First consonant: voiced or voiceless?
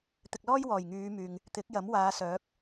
voiceless